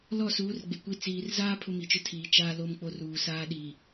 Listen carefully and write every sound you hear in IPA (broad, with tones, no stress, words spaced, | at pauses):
lɔ˦˨suː˨˦r ɡ͡be˨kʷi˦ t͡siː˨rzaː˦ pʰʊ˦mi˨t͡ʃʊ˦ tʰiː˨ t͡ʃaː˦ lo˦mk͡po˦ruː˨ saː˦ɗiː˨